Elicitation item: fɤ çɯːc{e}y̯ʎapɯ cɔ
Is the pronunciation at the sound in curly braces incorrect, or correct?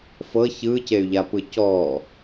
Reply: correct